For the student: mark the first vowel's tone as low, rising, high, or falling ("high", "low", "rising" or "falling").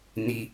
high